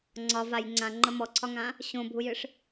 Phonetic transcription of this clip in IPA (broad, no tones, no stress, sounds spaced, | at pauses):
ŋ͡ǀ ɒ v a j ŋ͡ǀ ã ŋ͡ǃ ə m ɔ ǀʰ ɒ ŋ ã | ɕ õ bʱ u j ɨ ʂ